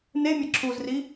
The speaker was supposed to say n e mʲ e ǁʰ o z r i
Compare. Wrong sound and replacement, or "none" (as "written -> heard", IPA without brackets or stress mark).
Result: o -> u